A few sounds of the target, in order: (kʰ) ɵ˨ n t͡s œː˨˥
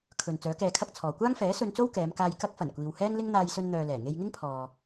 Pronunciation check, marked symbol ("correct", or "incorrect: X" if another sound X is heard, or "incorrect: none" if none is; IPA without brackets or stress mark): correct